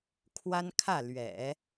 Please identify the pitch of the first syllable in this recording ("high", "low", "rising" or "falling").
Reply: high